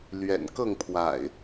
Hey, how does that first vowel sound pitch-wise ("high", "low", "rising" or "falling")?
low